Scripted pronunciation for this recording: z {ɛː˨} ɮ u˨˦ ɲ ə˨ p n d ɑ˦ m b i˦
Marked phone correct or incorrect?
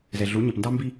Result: incorrect